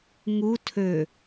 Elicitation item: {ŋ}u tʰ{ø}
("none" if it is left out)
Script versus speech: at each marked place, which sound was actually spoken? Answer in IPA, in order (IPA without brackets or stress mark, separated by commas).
ŋ, ø